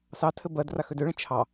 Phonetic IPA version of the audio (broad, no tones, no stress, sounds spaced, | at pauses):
s ɑ tʰ ɘ b ɜ d r a x ø d ø ɭ ə̃ t͡ʃʰ ɑ